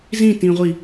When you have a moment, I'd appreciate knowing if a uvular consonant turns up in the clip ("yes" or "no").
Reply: yes